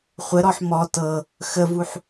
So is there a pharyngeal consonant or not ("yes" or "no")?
yes